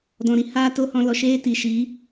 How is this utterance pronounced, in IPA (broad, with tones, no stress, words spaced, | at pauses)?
dɔ̃˨ɾi˧ haː˦to˦hɔ̃˧lɔ˨ ʃeː˦ti˨ʃi˨˦